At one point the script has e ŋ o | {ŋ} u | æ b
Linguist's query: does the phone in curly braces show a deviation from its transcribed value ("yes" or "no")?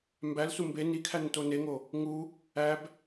no